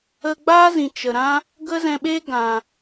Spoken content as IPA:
ə˧ɡ͡ba˦zĩ˨ t͡ʃə˨ɾã˦ | ɡə˦zɛ̃˧ɓe˦ ɡã˨

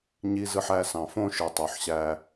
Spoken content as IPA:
ɲi˦zɯ˦ħæ˦ sɑ̃˨fõ˦ʃɯ˨tˤo˨ħ ɕæ˦

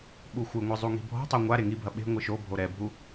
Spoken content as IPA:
ɓuxʷɨŋʷɨ zˤuŋi̤bʱɔ̤tˤo ŋʷa ɾeŋibʱɐ ɓe̤ ŋʷɨʃobʱo ɾɛbʱu

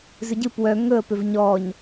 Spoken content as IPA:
zʏɟɨ pwœ ŋɵə̯ pʏvɲɔɲ

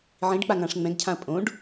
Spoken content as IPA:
ʕĩɖk͡paŋãʂ ŋ͡mɛ̃ɡcʰãɐ̯ pʼõɖ

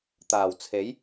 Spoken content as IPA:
t̪aː˨˩wt͡sʰe˨˥j

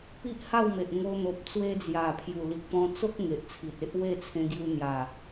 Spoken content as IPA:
pi˦ʔha˥˧w me˨ʔŋo˧n̪o˨p̚ t͡swe˧d͡zja˨˩pʰju˨˩ li˨k̚pɔ̃˧t͡so˦k̚ ŋe˨ʔt͡sʰi˨t̚e˦ʔ we˥˧t͡sʰẽ˧ɡju˧n̪ja˨˩

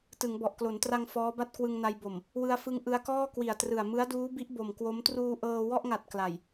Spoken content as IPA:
tɯ˩˦ŋbɔ˨˩ʔklo˩˦ntra˧ŋ fɔː˦˥ba˥˩t̚ kwɯ˧ŋna˧jbo˨˩m | wɯ˧a̯fɯ˧ŋ ʔɯ˧a̯kɔː˥˩ kwi˨˩a̯trɯ˨˩a̯ mɯ˦˥a̯duː˦˥bi˦˥ʔ bo˨˩mkwo˦˥m truː˧ʔɤː˧ wɔ˥˩ʔŋa˨˩t̚ kla˨˩j

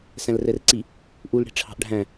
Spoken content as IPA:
sæ̃lrɛrǀi | ʔul ɽi̤ʈ͡ʂʰɑ̤ʔɖʱæ̃

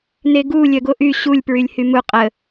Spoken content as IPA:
neɡu lʲœɡoʔy ɕulʲ pɹylʲhymu qʼə

